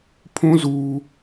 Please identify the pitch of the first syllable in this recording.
high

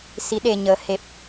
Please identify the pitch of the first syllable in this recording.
rising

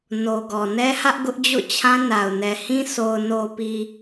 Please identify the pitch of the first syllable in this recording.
low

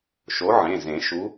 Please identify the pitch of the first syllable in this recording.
rising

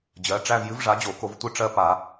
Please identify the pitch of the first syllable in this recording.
rising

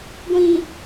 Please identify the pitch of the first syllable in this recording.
low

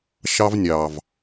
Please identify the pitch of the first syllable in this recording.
high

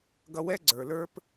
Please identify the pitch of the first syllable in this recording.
high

